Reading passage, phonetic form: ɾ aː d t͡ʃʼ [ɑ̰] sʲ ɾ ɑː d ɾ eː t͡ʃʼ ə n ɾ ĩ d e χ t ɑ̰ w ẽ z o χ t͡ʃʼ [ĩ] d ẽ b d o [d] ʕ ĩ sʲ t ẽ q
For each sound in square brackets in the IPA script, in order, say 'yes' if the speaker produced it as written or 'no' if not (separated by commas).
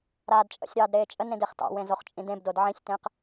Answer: no, yes, yes